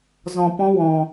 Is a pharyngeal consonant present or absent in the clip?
absent